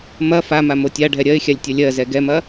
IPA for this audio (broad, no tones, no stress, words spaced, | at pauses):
mɐ fama motʲaɖʱɛ ɾʲɜɪ̯xʲalʲ tʲɐlʲɜzɛ ɡɛmɐ